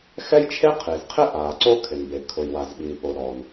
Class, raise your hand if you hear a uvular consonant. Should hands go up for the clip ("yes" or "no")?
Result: yes